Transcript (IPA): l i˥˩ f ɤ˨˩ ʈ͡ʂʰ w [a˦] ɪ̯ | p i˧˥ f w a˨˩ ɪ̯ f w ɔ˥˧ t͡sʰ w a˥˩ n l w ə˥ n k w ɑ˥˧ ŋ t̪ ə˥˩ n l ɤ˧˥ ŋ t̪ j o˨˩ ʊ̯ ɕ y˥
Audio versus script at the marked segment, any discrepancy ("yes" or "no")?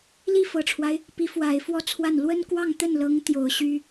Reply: no